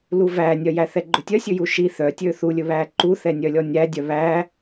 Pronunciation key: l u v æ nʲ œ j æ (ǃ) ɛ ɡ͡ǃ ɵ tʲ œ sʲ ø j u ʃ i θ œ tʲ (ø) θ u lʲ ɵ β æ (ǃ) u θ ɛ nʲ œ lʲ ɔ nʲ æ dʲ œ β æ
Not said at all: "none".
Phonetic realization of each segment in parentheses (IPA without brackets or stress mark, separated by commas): θ, ø, ǃ